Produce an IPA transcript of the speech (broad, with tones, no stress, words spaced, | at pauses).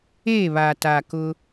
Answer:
eː˦˨βa˨taː˨ kʊ˦